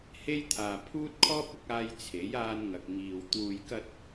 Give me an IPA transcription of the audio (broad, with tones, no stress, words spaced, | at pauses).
he˥jt̪ʰaː˨ pʰuː˥t̚kʰɔː˥p̚ ʊ˨˥k̚aː˧j t͡sʰe˨˥jaː˧n ŋɐ˨k̚ŋiː˨w t̪uː˨jkɐ˧t̚